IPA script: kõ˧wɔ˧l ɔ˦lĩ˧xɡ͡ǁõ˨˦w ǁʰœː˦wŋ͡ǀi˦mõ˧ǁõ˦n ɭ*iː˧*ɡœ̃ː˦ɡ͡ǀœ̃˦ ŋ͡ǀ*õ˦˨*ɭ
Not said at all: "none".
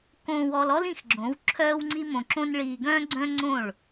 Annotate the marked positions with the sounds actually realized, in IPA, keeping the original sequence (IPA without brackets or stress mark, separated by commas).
iː˧, õ˦˨